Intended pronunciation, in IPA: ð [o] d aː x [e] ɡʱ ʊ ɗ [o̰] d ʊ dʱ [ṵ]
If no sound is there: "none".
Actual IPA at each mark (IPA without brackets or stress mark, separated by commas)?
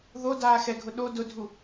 o, ɛ, o, u